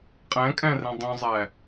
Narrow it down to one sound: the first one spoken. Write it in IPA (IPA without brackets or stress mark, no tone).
qʼ